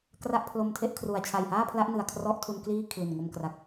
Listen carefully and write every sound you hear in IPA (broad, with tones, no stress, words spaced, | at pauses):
kra˦˥ʔpʰlo˧mtʰe˦˥ʔkʰru˨˩a̯ t͡ɕʰa˨˩jhaː˥˩pʰla˦˥ʔ nɯ˨˩a̯kʰrɔ˦˥ʔtʰu˧n kliː˥˩kʰli˨˩nŋo˧mkra˨˩k̚